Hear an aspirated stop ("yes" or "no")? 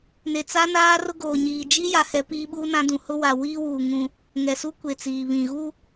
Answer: no